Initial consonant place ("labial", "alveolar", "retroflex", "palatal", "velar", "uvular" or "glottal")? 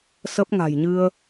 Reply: alveolar